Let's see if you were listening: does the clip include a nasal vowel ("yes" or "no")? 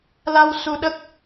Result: no